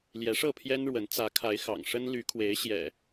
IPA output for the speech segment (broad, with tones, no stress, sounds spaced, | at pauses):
l j ɛ˨˦ ʂ ɤ˥˨ pʰ j ɛ˦ n ɻ w ə˨˦ n t͡s ä˨˦ kʰ a˨˦ ɪ̯ x ɑ̰˨˩ ŋ ʂ ə˦ n l y˨˦ kʰ w e˨˦ ɪ̯ ɕ j ɛ̰˨˩